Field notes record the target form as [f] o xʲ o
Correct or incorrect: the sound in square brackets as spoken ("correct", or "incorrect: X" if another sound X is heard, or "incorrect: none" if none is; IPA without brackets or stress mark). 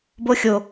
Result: incorrect: b